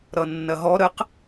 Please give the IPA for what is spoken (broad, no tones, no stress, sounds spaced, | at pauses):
ɾ ʌ nː ɐ ɦ ɔ ɾ ə q